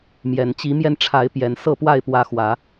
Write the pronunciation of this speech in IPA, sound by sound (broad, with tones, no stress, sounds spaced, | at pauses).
m j ɛ˨˩ n t͡ɕ i˨˦ m j ɛ˧ n ʈ͡ʂʰ a˨˦ ɪ̯ p j ɛ˨˦ n s ɤ˥˨ p w a˥˨ ɪ̯ p w ä˨˦ x w ä˨˦